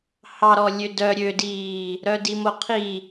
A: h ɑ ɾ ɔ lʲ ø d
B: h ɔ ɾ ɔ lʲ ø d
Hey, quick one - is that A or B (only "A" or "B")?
A